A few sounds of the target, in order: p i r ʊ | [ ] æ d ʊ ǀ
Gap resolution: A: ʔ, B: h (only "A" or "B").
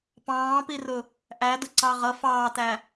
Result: A